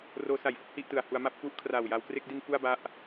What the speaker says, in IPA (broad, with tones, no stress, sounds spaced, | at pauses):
r oː˦˥ s a˨˩ j f ɯ˥˩ k̚ h i˥˩ ʔ t ɯ˨˩ a̯ h u˧ a̯ m a˥˩ p̚ k u˦˥ ʔ kʰ r aː˨˩ w j a˧ w k r e˥˩ k̚ d i˧ n f u˥˩ a̯ b a˦˥ ʔ